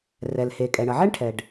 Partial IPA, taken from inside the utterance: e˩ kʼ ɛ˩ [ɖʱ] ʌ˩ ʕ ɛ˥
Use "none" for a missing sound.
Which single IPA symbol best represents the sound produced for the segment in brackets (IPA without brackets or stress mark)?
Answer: ɳ